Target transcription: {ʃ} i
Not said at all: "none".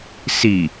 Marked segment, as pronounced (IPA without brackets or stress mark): s